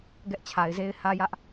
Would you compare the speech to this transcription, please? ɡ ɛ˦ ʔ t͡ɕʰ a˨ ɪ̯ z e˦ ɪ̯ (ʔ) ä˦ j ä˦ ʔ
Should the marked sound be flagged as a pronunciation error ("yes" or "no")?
yes